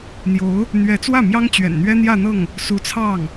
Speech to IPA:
n̪ j o˧˥ ʊ̯ | n̪ ɥ ɛ˧˥ t͡s w ä˥˩ m j ɑ˥ ŋ t͡ɕ ɥ ɛ̰˨˩ n n̪ ɥ ɛ˥ n̪ j ä˥˧ n̪ ɤ˥˩ ŋ | s u˧˥ t͡sʰ ɑ˥˩ ŋ

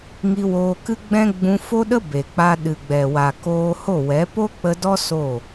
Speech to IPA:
ŋ i˧ w oː˧ k ɨ˦ ɡ͡b ɛ̃˦ ɡ͡b ũ˧ f o˦ ɗ ə˦ b e˨ k͡p a˧ ɗ ɨ˨ ɡ͡b ɛ˨ w a˨ k oː˧ h o˦˨ w ɛ˨˦ p o˦ k͡p ə˧ d ɔ˦ s o˦˨

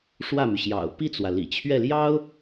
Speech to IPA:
ʂ w ä˥˩ m y˩ ɕ j ɑ̰˨˩ ʊ̯ p i˥˩ t͡s w ä˩ l ḭ˨˩ t͡ɕʰ ɥ ɛ˥˩ l j ɑ˥ ʊ̯

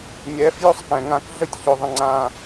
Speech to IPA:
nʲ ɛː˨˦ f j ɵ˦ sˤ k ɛ̃˨ ŋ ã˦ k ɮ ə˦ tʲ ç ɵ˨ ðˤ ə̃˨ ŋ͡ǀ ãː˨

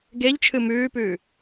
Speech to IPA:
ɡ e ʎ t͡ʃʰ ɨ m ʉː p ʉː

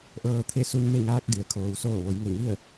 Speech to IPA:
ʔ ɤː˧ t̪ʰ e˥˨ s u˧ n m e˥˨ ŋ aː˧ k̚ d i˩ ə̯ kʰ oː˩ w s oː˧˩ ʋ o˩˧ j ŋ e˧˩ ŋ i˥˨ ə̯

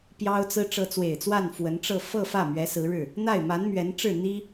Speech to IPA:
p j ɑ˥ ʊ̯ t͡s ɹ̩˥ ʈ͡ʂ ɤ˧˥ t͡s w e˨˩ ɪ̯ t͡s w a˥˩ n f w ə˧˥ n ʈ͡ʂ ɤ˥˧ f ɤ˥˧ f ä˥˩ m ɥ ɛ˧˥ s ɹ̩˧˥ ɻ ɻ̩˥˩ | n̪ a˥˩ ɪ̯ m a˧˥ n m ɥ ɛ˧˥ n ʈ͡ʂ ɻ̩˥˩ n̪ i˥

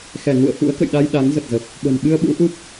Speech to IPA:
x ɛ˧˩ ŋ ṵ˧˨ ə̯ f ṵ˧˥ ə̯ k ə̰˧˨ j ɗ a˧ j ɗ a˨˦ ŋ z ə˨˩ t̚ z ə˨˩ p̚ | ɓ ə̤˨˩ n ɓ ɨ˧ ə̯ ɓ ṵ˧˥ ʔ u˦˥ p̚

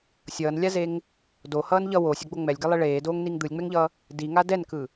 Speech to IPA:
sʲ ʌː n lʲ a z e ŋ | d o h ʌː n ʎ ʌ w oː sʲ a ɡ͡b o ŋ͡m ɛ lʲ ɡ ɛ lˠ e ɭ eː d oː ŋ n i ŋ d̪ ɯ lʲ ŋ͡m ɛ ŋ ʎ ʌː | d i ŋ a d ɛ n k ɯ

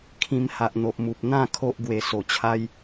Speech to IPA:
kʰ ĩ˧ m h a˨ ʔ n̪ o˨ ʔ m u˨ p̚ n̪ ã˥˧ kʰ o˦ ʔ ɡ w e˨˩ s o˨˩ t͡ɕʰ a˧ j

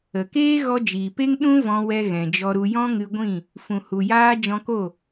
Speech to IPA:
ə˨ k eː˦ ɣ ɔ˧ d͡ʒ iː˨ p e˦ ŋ ɗ ũ˦ v ɔ̃˧ w ɛ˧ ɣ ɛ̃˨ d͡ʒ ɔ˧ ɾ u˧ j ɔ̃˦ ŋ ɨ˧ ɡʷ ĩ˦˨ | f ũ˨ h u˨ j aː˧ d͡ʒ ɔ̃˧ k o˦˨

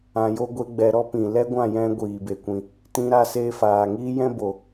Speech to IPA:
ã˧ j o˦ ɡʷ e˦ ɡ͡b ɛ˧ ɾ ɔ˦ p ĩ˨ l ɛ˦ ɡʷ ã˦˨ j ɛ̃˧ ɡʷ iː˨ b e˨ kʷ ĩ˨ | t ĩ˧ ɾ a˧ s eː˧ f aː˨ ŋ iː˦ j ɛ̃˦ b o˨

